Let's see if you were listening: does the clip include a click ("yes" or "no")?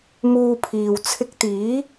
no